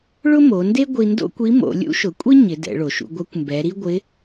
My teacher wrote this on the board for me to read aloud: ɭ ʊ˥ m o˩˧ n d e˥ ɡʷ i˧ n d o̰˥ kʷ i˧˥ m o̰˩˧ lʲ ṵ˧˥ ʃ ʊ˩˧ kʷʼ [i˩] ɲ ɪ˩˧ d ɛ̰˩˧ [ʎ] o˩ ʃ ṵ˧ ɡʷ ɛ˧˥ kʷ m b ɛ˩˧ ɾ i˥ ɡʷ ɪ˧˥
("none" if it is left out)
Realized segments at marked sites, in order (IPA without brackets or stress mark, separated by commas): i˥, ɭ